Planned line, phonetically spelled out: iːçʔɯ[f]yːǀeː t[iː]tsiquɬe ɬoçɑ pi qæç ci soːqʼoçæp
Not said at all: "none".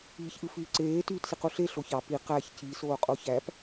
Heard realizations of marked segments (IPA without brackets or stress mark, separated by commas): f, yː